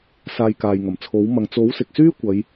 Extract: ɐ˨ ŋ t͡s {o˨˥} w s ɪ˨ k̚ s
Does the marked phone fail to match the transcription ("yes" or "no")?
no